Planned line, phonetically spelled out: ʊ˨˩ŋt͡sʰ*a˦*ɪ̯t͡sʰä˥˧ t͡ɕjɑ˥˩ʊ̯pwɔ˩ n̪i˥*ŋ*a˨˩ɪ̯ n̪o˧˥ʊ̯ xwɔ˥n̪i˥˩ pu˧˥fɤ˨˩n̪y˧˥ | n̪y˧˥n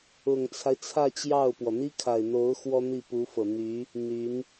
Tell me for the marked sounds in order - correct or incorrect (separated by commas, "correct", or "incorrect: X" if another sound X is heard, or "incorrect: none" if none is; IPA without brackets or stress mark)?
correct, incorrect: kʰ